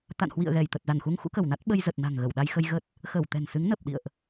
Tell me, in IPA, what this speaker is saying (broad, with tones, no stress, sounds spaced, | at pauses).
t̪ a̰˧˨ n h w ḭ˧˨ ə̯ ɣ ɛ˧˩ j t̪ ə˨˩ t̚ z a˧˩ n x u˧ ŋ x ṵ˧˥ k ə˧˩ w n a˦˥ t̚ ɓ ə˧ j z ə˨˩ t̚ n a̤˨˩ ŋ ɣ ə˧˩ w ɗ a˧ j x ə˧ j ɣ ə˦˥ t̚ | x əː˧˩ w t̪ ɛ̤˨˩ n s ɨ˨˦ ŋ n əː˨˩ p̚ ɗ ḭ˧˨ ə̯ ʔ